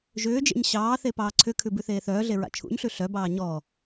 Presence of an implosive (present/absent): absent